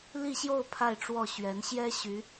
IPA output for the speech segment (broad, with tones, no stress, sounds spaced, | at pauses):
l i˥˧ ɕ j o˥˧ ʊ̯ pʰ a˥˧ ɪ̯ ʈ͡ʂ w ɔ˥˩ ɕ ɥ ɛ˧˥ n ɕ j ɛ˥ ɕ y˧˥